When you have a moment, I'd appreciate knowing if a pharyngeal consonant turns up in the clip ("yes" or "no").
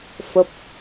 no